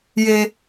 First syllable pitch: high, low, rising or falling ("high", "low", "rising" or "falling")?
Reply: high